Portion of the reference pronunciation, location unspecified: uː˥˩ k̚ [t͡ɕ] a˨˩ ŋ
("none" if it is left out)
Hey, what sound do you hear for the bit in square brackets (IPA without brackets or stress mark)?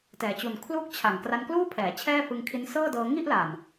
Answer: t͡ɕʰ